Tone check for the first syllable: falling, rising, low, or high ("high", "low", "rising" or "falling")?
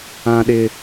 high